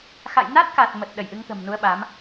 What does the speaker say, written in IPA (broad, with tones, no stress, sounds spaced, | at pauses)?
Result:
x a̰˧˨ j n a˦˥ t̚ k a˨˩ t̚ m ə˨˩ t̚ ɗ ə˧˩ j ʔ ɨ˨˦ ŋ t̪ ə̤˨˩ m n u˨˦ ə̯ ɓ a˨˦ m